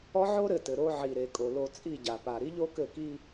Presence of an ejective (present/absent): present